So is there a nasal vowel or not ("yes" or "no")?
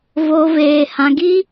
yes